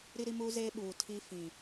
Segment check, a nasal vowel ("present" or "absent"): present